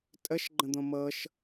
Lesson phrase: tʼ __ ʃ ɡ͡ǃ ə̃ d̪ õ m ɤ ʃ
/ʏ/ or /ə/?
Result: ə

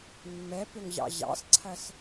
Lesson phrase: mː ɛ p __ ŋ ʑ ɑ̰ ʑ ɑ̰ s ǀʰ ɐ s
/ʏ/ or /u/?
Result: ʏ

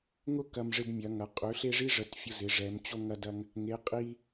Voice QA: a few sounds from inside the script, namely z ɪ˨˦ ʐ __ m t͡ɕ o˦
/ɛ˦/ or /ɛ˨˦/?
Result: ɛ˨˦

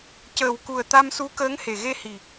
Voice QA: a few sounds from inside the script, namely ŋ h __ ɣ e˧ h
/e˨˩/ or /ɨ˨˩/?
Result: e˨˩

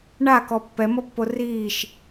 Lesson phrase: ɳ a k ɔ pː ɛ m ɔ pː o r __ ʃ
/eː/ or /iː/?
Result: iː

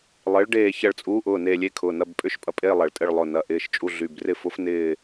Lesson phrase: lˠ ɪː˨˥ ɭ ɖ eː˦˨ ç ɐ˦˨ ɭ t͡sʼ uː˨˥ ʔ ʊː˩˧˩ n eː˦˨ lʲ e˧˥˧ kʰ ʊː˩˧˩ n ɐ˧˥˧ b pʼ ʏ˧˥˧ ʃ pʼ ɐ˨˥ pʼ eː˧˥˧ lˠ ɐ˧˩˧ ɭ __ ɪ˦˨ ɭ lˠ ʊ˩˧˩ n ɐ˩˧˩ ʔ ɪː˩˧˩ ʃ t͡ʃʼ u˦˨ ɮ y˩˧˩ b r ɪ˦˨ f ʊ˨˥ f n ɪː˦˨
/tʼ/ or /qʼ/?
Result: tʼ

